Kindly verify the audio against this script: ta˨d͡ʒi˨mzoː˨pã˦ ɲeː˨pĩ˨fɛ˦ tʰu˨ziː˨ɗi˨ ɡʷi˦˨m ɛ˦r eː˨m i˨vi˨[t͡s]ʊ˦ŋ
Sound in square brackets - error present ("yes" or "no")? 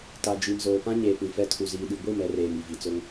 no